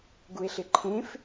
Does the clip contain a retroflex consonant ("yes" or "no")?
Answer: no